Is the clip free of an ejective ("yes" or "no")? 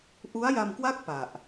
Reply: yes